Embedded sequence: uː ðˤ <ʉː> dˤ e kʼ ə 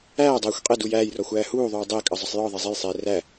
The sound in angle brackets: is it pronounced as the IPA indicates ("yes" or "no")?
no